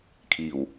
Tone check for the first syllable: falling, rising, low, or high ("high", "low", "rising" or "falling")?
low